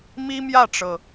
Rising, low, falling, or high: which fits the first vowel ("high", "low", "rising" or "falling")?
high